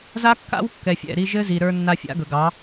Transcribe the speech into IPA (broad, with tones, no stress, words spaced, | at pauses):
za˦kːa̰˦wkːɛ˨fʲɛ̰˦˨ ɾi˧ʒɘ˦zi˨ ɾə˞˧nːa˧ fʲa̰˦ɡɵ˨ɡɑ˨˦